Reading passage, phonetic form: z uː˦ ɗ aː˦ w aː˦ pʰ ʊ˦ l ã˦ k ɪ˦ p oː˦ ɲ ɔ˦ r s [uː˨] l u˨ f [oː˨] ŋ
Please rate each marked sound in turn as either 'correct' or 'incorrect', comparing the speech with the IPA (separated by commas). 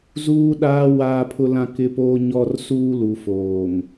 incorrect, correct